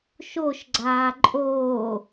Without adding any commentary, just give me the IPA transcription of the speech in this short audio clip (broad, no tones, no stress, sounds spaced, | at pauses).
ʃ o ʃ ɡ͡ǀ aː ǃʼ oː